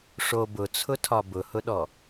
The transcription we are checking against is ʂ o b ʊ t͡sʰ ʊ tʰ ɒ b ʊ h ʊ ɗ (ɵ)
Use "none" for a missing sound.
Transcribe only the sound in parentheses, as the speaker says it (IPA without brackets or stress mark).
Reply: ɔ